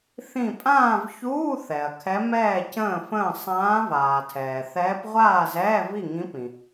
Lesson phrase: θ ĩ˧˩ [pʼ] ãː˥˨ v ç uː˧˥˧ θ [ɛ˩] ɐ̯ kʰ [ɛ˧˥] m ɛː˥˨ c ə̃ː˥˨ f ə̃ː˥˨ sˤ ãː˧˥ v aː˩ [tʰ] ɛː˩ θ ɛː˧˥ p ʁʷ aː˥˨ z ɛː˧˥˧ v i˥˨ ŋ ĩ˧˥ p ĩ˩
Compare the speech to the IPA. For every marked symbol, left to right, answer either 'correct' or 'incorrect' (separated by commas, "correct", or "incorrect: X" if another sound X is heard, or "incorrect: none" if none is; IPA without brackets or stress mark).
correct, correct, correct, correct